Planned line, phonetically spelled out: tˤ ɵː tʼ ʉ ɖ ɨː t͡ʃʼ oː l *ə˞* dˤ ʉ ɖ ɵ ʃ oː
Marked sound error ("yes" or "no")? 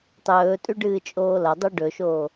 yes